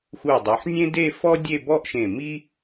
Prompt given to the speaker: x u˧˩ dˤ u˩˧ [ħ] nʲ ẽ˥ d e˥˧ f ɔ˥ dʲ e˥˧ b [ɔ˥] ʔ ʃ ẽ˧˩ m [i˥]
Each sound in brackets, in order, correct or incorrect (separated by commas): correct, correct, correct